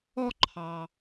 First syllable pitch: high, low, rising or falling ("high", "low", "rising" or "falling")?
high